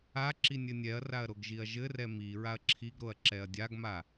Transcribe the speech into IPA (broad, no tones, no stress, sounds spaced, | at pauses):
a ǁ i nʲ ɘ nʲ ɛ ɐ̯ r a ɐ̯ ɾ o ɡ ʒ i ɐ̯ ʒ ɘ r ɛ m i ɹ a ɐ̯ ǁʰ i ɡ ɾ o ɐ̯ ǁ ɛ ɐ̯ dʲ a ɡ m a